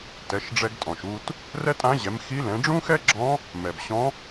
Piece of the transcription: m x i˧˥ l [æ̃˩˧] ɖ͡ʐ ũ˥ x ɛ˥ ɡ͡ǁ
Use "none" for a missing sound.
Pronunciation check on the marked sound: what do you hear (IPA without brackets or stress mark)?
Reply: ɛ̃˩˧